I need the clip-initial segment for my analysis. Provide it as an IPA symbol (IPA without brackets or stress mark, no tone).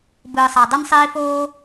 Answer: b